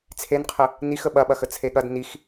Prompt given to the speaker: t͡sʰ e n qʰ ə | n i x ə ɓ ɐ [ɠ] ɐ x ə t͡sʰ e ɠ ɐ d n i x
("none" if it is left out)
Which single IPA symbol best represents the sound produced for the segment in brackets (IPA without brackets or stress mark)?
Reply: ɓ